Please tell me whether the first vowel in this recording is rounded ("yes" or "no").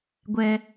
no